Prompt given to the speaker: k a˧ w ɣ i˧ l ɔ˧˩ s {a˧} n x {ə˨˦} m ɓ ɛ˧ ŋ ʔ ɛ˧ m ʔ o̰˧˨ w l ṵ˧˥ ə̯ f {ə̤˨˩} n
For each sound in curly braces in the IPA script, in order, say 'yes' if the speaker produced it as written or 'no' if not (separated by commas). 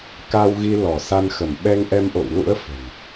yes, no, yes